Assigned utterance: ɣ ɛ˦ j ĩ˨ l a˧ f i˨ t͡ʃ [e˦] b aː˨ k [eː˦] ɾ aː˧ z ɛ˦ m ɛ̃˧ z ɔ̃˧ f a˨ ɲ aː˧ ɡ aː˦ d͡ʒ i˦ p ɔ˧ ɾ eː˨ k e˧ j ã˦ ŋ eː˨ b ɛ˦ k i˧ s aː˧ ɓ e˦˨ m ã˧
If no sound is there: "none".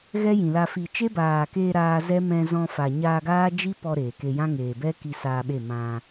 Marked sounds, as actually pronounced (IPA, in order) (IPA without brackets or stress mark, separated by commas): e˦, eː˧